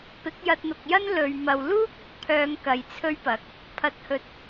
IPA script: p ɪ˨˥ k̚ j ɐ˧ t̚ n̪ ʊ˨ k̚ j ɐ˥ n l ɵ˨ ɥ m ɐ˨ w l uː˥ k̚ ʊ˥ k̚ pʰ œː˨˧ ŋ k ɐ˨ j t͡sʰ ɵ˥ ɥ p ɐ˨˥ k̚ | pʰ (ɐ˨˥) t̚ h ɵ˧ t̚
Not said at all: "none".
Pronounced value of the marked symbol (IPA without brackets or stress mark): ɐ˧